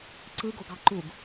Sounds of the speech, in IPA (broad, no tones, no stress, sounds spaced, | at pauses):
ǀ ɯ ɡ o ɡ ɑ ǃ u ɡ